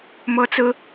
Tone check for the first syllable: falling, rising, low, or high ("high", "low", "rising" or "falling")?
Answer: high